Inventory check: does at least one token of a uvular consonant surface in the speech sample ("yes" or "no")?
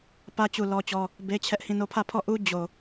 no